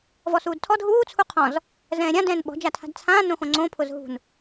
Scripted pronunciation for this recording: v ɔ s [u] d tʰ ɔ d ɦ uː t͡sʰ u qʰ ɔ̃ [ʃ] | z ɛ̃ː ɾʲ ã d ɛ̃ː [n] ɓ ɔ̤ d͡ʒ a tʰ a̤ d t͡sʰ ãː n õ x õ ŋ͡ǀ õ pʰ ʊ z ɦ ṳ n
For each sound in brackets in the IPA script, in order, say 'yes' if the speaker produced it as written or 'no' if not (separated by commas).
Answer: no, no, yes